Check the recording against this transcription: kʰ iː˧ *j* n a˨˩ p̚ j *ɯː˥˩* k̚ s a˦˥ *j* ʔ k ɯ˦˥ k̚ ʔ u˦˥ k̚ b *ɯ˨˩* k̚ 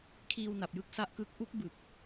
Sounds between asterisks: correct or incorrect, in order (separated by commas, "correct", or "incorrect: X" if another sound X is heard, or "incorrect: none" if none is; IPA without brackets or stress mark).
incorrect: w, incorrect: ɯ˥˩, incorrect: none, correct